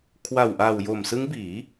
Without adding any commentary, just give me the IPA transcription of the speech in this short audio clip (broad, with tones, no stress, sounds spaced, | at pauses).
kʰ w a˨˩ w ʔ a˨˩ w j o˨˩ m s ɯ˦˥ ŋ b iː˩˦